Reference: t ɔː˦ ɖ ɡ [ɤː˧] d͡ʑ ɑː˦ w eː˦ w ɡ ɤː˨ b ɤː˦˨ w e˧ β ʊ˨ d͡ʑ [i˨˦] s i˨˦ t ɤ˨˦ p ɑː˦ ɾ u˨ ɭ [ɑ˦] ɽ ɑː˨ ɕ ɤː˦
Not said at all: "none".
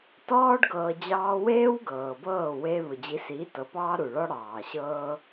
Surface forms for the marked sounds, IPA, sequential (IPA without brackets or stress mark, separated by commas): ɤː˧, i˨˦, ɔ˦